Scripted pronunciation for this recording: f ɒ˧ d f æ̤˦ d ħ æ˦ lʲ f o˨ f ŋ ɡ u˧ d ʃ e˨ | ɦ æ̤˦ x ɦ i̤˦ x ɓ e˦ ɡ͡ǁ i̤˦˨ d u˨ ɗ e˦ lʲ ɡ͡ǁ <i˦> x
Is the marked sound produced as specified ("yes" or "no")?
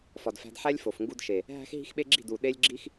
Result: yes